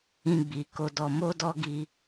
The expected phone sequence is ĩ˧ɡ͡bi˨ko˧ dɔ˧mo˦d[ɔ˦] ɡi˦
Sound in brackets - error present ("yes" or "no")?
no